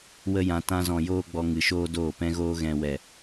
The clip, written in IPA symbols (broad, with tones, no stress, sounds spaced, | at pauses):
w ə˦ j ã˧ t ã˦ z ɔ̃˧ j oː˦ ɡ͡b ɔ˧ ŋ ɨ˨ ʃ oː˦ d oː˦˨ p ɛ̃˧ ɣ oː˧ ɣ ɛ̃˨ w ɛ˨